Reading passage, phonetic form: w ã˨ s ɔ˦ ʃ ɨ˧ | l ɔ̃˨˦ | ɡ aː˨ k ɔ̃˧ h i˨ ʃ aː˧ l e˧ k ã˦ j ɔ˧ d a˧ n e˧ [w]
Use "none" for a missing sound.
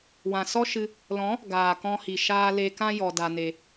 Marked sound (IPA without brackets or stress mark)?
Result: none